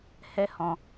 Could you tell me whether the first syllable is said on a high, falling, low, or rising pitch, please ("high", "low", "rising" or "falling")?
high